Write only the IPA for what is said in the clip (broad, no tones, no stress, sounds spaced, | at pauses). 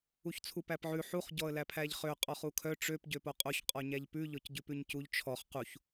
u ç t͡sʰ u p æ p ʕ ʉ ħ u χ ɟ ɔ ə̯ l æ pʰ æ ʎ χ ø qʼ ɔ χ u kʰ œ ʈ͡ʂ ø p ɟ ø p o qʼ o ç qʼ ɔ ɲ æ ʎ p ʉ ʎ ɔ c ɟ ʉ p ʉ ɲ c u ʎ t͡ʃʰ ɔ χ q u ç